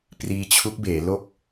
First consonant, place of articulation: labial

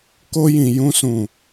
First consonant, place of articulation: velar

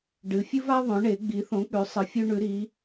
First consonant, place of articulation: retroflex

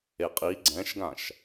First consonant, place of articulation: uvular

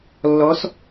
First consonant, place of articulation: alveolar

